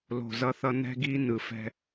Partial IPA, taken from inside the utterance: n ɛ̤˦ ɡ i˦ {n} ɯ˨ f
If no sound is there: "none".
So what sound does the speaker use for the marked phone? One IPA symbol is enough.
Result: n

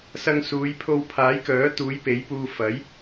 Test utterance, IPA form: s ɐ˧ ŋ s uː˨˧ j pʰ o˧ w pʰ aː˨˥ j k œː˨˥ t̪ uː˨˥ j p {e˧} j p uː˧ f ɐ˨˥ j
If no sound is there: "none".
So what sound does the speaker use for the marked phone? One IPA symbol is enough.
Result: e˨˥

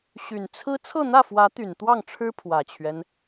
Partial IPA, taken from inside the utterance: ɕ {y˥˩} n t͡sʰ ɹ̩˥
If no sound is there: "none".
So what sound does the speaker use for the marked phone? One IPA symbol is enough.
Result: y˨˩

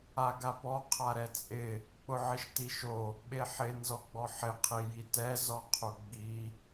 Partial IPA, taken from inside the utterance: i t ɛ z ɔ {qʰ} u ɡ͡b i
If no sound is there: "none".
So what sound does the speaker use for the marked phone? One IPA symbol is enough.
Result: qʰ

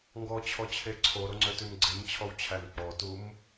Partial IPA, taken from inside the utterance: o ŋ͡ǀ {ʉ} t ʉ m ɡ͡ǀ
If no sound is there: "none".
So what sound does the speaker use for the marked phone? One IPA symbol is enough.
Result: ø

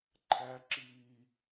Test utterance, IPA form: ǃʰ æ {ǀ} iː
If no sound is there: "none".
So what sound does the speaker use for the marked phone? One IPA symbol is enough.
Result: ǁ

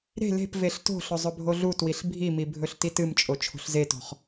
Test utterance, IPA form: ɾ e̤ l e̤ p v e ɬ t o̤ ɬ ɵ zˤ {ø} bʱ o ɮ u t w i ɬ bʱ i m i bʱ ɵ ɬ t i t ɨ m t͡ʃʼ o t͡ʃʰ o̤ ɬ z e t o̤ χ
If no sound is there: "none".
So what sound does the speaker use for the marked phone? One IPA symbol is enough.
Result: ɵ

